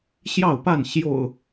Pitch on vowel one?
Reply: falling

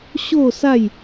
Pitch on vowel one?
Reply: falling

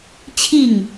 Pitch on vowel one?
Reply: falling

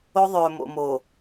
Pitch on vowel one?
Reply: high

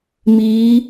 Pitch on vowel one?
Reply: rising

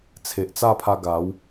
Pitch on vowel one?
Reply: low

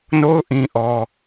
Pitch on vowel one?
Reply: high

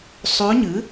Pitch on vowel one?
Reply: rising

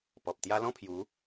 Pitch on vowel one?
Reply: low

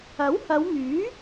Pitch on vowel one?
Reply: rising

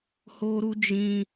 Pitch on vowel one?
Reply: high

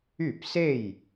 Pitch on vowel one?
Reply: falling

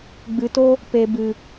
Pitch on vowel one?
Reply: low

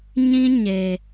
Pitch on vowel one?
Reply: high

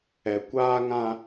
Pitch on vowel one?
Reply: low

